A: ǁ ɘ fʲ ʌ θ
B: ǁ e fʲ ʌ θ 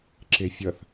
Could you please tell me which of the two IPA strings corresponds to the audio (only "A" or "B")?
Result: B